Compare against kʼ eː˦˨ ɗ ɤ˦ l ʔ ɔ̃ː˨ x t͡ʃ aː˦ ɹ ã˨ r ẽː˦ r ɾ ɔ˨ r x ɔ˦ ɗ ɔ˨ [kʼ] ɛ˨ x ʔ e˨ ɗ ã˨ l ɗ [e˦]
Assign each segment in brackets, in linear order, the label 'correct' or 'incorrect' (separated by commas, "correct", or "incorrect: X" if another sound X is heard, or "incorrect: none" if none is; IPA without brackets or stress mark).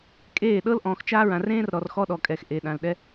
correct, incorrect: ɛ˦